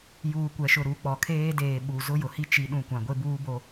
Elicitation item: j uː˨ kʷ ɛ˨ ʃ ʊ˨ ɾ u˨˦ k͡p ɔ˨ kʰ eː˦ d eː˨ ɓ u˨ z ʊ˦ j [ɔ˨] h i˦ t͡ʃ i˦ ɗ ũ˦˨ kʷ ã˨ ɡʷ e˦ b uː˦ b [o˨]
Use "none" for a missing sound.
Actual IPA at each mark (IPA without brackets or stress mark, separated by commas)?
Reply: ʊ˨, o˦